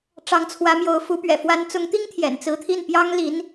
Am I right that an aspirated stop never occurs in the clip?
no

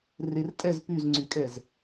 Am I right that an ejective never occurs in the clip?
no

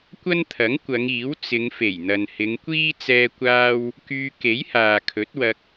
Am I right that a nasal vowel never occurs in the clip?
yes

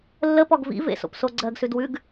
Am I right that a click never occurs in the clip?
no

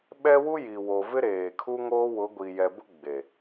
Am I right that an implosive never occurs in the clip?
no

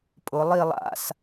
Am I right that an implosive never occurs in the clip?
yes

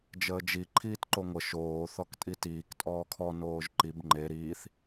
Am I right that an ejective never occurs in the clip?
no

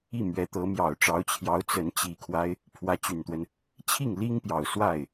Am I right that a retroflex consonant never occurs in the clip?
no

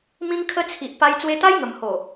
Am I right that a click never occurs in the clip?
yes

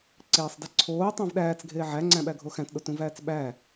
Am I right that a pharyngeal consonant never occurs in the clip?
no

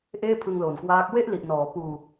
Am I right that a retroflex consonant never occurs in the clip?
yes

